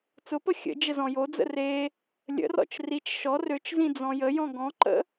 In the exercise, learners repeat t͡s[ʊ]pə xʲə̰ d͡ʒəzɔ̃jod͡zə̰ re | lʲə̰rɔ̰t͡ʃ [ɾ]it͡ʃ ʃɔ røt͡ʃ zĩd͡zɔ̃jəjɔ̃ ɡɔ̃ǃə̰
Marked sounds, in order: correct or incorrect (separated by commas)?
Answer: correct, incorrect